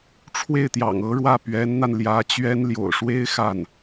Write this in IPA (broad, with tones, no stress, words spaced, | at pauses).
ʈ͡ʂʰwe˥˩ɪ̯t̪jɑ̰˨˩ŋ ɤ˧˥ɻwä˥˩ pɥɛ˧˥nn̪a˧n ljä˧˥ t͡ɕɥɛ˥n ljo̰˨˩ʊ̯ʂwe˥ɪ̯ xa˥˩n